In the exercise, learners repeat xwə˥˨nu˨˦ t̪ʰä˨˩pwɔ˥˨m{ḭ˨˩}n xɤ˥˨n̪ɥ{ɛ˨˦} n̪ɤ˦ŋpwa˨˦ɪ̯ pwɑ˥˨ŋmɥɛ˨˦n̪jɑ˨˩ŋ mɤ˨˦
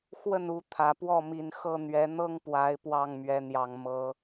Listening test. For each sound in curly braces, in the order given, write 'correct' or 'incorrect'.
incorrect: i˨˦, correct

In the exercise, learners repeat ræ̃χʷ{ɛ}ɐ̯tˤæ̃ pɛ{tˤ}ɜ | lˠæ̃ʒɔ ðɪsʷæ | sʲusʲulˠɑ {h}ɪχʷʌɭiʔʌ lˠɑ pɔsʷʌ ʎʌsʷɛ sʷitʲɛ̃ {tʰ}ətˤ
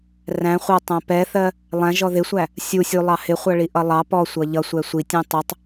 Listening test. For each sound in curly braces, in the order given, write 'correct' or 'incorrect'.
incorrect: ɪ, incorrect: θ, correct, incorrect: tˤ

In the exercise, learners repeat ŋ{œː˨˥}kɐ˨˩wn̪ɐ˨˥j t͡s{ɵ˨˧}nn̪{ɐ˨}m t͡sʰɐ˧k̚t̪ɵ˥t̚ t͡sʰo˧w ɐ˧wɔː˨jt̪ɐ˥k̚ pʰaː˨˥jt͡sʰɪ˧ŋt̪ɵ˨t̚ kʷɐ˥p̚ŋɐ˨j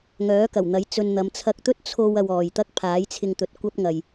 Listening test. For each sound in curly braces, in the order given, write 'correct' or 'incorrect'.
correct, incorrect: ɵ˧, incorrect: ɐ˨˧

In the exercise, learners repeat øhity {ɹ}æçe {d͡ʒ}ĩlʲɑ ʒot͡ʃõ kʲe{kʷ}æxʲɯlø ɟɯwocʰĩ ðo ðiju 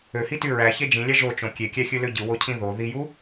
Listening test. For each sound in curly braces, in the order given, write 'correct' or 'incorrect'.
correct, correct, incorrect: kʲ

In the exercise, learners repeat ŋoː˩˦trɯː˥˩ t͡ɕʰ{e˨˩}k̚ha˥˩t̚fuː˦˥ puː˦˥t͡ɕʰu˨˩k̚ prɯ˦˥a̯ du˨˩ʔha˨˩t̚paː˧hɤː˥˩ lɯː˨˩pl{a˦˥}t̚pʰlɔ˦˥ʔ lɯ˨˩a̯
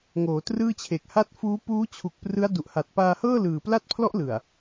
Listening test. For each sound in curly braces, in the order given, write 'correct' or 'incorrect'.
correct, correct

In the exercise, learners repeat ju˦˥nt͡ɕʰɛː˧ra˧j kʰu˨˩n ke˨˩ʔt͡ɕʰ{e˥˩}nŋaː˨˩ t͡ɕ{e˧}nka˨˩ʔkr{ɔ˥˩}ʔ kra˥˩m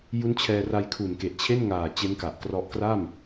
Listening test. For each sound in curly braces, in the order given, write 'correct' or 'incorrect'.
correct, incorrect: e˦˥, incorrect: ɔ˦˥

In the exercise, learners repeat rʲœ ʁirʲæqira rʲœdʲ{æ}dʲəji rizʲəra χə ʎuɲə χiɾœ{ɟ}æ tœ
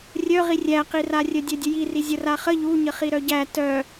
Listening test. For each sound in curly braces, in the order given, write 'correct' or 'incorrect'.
incorrect: œ, correct

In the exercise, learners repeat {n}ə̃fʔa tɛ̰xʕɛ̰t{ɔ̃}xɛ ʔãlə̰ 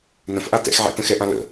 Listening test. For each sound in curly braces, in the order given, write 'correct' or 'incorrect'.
correct, incorrect: ə̃

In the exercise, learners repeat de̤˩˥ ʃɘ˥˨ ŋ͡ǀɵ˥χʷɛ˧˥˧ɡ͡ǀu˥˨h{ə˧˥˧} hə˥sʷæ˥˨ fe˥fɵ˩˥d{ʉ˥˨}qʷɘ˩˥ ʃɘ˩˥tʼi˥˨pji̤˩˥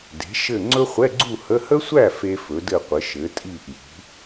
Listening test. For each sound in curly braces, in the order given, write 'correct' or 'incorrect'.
correct, incorrect: ɘ˥˨

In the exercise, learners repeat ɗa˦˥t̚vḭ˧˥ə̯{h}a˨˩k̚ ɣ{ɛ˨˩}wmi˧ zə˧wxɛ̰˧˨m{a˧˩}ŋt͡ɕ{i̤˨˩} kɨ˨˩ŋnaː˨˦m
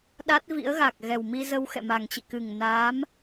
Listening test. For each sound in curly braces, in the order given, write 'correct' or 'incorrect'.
incorrect: ɣ, correct, incorrect: a˨˩, incorrect: ḭ˧˨

